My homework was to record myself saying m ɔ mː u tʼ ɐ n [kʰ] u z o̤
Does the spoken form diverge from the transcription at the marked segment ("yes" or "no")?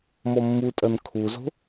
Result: no